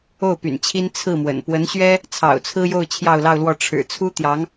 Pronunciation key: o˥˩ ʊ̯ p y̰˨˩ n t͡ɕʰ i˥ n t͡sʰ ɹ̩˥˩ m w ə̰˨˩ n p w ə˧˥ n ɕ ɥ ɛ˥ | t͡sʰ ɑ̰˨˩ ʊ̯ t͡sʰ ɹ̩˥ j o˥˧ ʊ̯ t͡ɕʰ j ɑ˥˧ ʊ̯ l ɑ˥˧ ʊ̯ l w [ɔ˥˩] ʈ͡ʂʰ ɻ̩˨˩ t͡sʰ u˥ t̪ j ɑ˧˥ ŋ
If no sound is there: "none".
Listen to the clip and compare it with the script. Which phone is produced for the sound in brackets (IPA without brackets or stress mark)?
ɔ˥˩